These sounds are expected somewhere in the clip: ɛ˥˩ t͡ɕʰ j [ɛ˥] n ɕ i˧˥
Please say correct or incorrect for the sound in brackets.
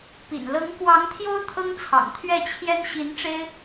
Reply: correct